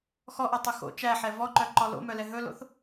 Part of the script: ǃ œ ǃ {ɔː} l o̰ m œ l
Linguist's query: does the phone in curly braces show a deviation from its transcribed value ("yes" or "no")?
yes